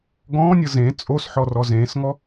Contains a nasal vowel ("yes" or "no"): yes